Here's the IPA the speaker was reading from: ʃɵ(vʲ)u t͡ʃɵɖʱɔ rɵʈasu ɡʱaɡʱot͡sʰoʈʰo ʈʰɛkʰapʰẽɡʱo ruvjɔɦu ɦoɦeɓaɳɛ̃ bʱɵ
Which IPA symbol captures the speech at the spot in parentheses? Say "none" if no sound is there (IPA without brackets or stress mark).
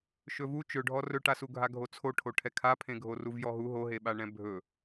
v